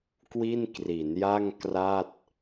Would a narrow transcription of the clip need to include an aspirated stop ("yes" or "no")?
no